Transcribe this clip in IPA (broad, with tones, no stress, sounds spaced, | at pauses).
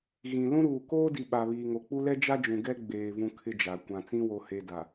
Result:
ɣ ĩ˨ l ũ˦ ɾ uː˨ k oː˦ d i˨ ɓ a˨ β iː˨ ŋ o˨ k͡p u˦ l ɛ˦ d͡ʒ a˦ d͡ʒ ũ˨ ɡ ɛ˦ ɡ͡b eː˨ v ũ˦ kʰ ɪ˦ d͡ʒ a˨ kʷ ã˨ t͡s ĩ˦ w o˨ h e˨ d a˨